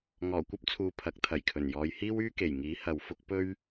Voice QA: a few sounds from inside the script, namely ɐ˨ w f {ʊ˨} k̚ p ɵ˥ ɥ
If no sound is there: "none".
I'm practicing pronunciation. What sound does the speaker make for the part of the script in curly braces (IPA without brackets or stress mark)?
ʊ˥